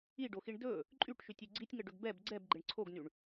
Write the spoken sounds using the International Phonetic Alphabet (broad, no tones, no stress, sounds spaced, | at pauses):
i ɖ o x i ɳ d ɵ | ǃʼ y ʈ ʃ y tʲ y ɡ͡ǀ i tʲ ŋ ə ɖ ɵ ɡ b ɛ b ɡ͡ǀ ɛ b ɡ͡ǃ ɪ ɳ ǀʰ o ɡ n y ɳ